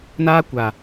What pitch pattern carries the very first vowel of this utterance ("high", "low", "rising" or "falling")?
high